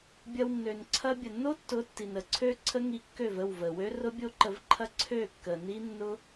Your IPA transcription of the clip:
bʲɐ˧wnːø˨n ǀʰɐ˧bʲə˨nːo˦tːʊ˨˦ tːi˨nə˨ǀʰø˦ ǀʰə˦ŋi˧ kːø˦˨və˦˨wvə˨wø˦ rʊ˦bʲo˦ǃə˧v ǃʰɐ˦ǀʰø˦˨kːə˨ni˦ nːʊ˦

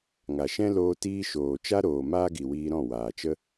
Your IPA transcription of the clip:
ŋa˨ʃɛ̃˦ loː˧tiː˧ ʃoː˨t͡ʃa˦ ɾoː˨ maː˦ɡi˨wiː˧ɾɔ̃˦˨ waː˨t͡ʃə˦

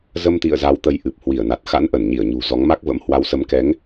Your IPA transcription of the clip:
zə˧mt̪ḭ˧˨ə̯ za˨˦wt̪ə˨˦jʔɨ˨˩p̚ hwi˧˩ə̯na˨˩t̚ xa̰˧˥nʔə˧˩nɲi˧˩ə̯ɲṳ˨˩ zɔ˨˦ŋma˦˥k̚və̰˧˥m hwa˨˦wsə˨˦mkɛ˨˦ŋ

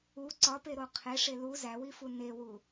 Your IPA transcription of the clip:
u ǀɒpeɾo qʰeʂe lu zæwifu newu

